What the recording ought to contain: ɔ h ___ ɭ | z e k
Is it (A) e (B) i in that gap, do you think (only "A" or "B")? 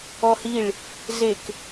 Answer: B